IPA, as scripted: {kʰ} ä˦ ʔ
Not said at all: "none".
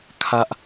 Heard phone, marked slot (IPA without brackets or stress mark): kʰ